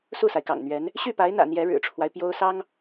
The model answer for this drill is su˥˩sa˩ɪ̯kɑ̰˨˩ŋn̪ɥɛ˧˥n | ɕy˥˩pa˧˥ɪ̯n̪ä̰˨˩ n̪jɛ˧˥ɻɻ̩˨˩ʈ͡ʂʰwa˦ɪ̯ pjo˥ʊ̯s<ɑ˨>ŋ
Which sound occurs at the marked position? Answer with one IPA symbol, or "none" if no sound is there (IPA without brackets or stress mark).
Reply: ɑ˥